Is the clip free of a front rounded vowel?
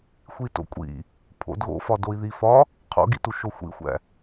yes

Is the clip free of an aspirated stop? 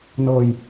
yes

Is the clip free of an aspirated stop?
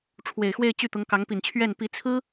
no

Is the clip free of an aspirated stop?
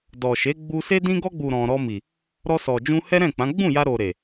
yes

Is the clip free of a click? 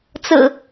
yes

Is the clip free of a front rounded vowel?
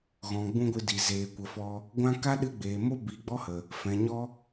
yes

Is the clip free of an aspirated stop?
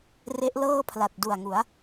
no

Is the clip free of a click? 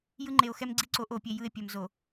no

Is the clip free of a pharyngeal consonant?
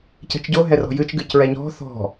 yes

